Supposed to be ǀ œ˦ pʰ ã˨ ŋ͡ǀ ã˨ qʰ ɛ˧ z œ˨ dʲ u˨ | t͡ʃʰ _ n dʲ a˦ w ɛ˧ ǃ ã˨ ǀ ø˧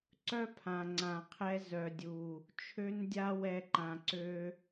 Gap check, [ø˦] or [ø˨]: ø˦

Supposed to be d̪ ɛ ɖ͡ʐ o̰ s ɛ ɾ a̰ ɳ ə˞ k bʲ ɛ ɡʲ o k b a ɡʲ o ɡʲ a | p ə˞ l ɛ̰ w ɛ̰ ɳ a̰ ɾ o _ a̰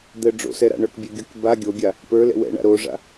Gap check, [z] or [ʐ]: ʐ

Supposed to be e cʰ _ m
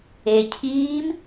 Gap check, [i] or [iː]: iː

